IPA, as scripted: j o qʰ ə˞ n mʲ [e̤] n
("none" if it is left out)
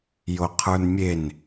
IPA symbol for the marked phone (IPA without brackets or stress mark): e